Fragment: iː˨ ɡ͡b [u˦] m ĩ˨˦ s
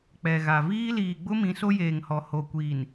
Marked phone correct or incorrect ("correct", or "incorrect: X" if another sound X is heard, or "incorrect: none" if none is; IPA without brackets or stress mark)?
incorrect: ʊ˦